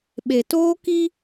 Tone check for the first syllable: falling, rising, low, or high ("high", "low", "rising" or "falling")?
low